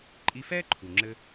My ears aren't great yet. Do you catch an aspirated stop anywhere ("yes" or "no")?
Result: yes